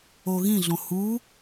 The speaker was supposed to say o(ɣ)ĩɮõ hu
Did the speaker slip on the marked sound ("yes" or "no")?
no